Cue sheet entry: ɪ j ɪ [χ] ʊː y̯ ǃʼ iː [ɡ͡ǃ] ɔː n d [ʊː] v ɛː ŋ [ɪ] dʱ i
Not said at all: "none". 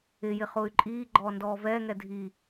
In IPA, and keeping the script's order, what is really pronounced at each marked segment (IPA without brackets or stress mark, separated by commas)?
χ, ɡ͡ǃ, ɔː, ɛ